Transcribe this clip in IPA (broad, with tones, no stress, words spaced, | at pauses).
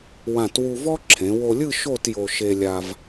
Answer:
wã˧˩twu˧vɔ˥ ǁʰẽ˩˧wo˧lʲɯ˥˧ ʃo˥˧tjo˧ ʃe˧lʲa˧v